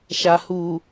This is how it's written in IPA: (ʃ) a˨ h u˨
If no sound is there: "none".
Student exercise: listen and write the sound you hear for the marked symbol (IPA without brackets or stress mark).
ʃ